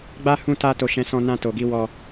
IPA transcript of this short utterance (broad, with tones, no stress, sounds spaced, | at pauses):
ɡ͡b a˦ h ũ˦˨ t a˧ t o˧ ʃ ɛ̃˧ s ɔ̃˧ n ã˧ t o˨ ɡ i˧ w ɔ˧